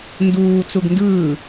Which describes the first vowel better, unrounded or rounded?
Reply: rounded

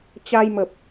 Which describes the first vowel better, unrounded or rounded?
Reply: unrounded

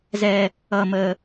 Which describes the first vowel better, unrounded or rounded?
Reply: unrounded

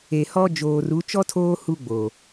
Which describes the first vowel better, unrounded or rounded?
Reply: unrounded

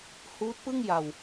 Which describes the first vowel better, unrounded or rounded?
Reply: rounded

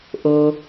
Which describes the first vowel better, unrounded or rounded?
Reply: rounded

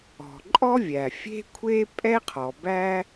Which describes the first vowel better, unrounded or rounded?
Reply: rounded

